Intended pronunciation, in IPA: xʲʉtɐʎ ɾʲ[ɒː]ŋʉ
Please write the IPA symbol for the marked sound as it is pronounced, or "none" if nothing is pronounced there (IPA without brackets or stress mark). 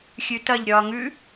ɒː